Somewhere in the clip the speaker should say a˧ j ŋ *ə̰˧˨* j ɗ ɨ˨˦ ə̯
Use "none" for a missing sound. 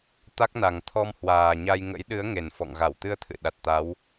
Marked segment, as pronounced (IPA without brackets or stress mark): ə̰˧˥